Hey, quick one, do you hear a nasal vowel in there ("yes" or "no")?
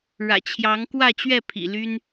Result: no